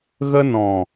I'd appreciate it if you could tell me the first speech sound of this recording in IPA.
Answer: ɣ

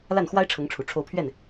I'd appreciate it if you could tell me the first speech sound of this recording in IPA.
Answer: l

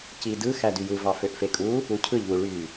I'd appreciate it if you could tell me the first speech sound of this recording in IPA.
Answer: c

